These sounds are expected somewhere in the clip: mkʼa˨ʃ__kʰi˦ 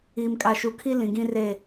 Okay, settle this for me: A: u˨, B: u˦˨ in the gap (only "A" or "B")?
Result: A